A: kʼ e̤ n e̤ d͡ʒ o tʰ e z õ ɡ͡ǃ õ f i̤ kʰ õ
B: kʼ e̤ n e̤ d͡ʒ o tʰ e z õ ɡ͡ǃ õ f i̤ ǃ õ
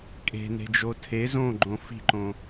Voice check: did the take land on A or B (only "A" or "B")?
B